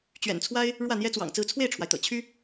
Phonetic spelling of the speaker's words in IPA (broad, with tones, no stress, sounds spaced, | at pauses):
t͡ɕ ɥ ɛ̰˨˩ n t͡sʰ w a˥ ɪ̯ | ɻ w ä˥˩ n̪ j ɛ˥ t͡s w ɑ̰˨˩ ŋ t͡s ɹ̩˥˧ t͡sʰ w e˥˩ ɪ̯ ʈ͡ʂʰ w a˩ ɪ̯ t̪ ɤ̰˨˩ t͡ɕʰ y˥